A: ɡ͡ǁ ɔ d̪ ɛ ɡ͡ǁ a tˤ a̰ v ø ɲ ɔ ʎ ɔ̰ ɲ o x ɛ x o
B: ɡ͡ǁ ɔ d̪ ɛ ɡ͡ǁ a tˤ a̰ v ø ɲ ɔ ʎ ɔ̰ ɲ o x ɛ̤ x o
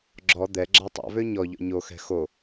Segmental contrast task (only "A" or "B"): B